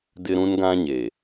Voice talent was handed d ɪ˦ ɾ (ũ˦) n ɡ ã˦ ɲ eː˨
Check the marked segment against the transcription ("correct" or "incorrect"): correct